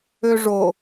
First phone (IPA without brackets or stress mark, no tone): ø